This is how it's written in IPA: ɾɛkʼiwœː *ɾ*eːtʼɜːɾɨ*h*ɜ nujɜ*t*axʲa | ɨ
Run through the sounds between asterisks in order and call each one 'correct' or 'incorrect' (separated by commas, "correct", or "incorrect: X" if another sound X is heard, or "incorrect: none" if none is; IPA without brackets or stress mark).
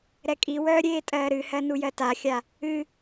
incorrect: ɾʲ, correct, correct